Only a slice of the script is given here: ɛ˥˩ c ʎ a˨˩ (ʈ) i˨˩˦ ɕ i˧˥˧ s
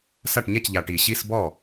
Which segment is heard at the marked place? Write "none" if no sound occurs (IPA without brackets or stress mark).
ʈ